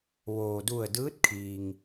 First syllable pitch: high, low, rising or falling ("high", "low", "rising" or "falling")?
low